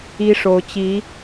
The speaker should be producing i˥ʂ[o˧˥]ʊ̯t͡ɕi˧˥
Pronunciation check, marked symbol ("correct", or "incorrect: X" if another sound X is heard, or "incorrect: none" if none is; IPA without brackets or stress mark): correct